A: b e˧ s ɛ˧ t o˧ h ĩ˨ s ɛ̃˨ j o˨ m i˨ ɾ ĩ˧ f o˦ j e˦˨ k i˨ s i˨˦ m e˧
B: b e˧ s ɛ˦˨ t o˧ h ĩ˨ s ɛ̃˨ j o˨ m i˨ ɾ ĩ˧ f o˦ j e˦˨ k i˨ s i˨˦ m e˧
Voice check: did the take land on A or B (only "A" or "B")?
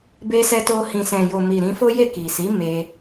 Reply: A